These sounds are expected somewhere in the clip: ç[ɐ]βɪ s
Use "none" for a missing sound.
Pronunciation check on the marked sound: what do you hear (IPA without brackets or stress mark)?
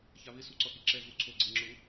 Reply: a